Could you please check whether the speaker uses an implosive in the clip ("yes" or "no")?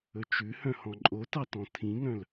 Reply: no